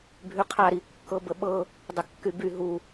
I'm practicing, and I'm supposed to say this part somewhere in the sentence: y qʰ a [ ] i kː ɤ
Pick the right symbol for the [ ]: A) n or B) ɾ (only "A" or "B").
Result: B